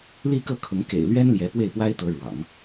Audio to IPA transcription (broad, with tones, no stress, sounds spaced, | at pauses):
l i˥˧ k ɤ˥˩ kʰ ʊ˧˥ ŋ k ḛ˨˩ ɪ̯ l ɥ ɛ˥ n l j ɛ˧˥ p w e˥˩ ɪ̯ p w a˥ ɪ̯ t̪ ɤ˧˥ ɻ w ɑ̰˨˩˦ ŋ